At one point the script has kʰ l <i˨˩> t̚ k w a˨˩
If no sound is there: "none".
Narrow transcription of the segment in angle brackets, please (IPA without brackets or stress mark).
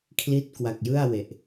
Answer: i˦˥